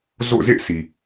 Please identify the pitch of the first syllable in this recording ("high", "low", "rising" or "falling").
falling